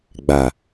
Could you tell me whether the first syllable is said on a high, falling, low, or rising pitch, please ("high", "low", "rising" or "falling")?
low